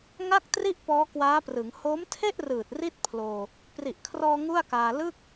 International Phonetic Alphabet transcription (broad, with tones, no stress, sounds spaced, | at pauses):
ŋ a˥˩ k̚ t r i˥˩ ʔ p ɔː˦˥ k w aː˦˥ p r ɯ˩˦ ŋ h o˦˥ m tʰ e˥˩ ʔ r ɯː˨˩ t̚ r i˥˩ t̚ pʰ l oː˧ | p r i˨˩ ʔ kʰ r ɔː˧ ŋ u˥˩ a̯ k aː˧ l ɯ˥˩ k̚